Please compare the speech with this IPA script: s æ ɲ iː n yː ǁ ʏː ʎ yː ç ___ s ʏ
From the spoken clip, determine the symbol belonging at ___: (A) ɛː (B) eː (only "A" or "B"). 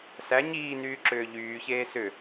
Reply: B